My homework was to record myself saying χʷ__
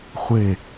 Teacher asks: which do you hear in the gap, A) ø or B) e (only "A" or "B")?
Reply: B